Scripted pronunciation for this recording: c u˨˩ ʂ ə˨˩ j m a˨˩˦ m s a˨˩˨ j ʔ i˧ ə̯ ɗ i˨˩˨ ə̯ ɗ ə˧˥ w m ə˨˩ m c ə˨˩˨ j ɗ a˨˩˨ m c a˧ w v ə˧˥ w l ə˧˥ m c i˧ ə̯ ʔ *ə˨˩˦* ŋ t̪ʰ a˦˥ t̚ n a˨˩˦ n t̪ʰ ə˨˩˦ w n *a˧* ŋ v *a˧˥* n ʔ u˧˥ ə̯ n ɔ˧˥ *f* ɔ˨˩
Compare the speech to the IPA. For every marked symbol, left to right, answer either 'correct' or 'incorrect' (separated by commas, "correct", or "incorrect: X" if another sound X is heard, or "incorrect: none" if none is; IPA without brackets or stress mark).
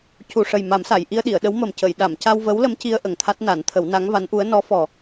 incorrect: ə˨˩, incorrect: a˧˥, correct, correct